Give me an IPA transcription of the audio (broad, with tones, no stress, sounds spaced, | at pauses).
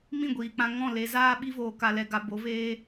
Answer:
m ĩ˦˨ ɡʷ iː˨ k͡p ã˧ ŋ ɔ̃˦˨ l e˨ z aː˧ ɓ i˧ v oː˨ k a˨ l ɛ˨ ɡ a˨ b o˨˦ v eː˦